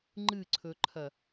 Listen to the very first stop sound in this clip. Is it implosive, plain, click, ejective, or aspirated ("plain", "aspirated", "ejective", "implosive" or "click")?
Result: click